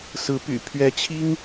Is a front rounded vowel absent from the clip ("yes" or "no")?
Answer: no